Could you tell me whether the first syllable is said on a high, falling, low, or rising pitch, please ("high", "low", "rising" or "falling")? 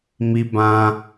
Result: high